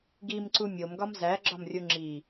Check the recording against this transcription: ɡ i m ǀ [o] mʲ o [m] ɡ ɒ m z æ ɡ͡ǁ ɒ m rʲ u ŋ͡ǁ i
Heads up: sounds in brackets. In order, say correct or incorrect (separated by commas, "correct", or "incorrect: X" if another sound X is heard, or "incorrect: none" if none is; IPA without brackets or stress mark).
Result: incorrect: u, correct